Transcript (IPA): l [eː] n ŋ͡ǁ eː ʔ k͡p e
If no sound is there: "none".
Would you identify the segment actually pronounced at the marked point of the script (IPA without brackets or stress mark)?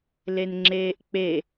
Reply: e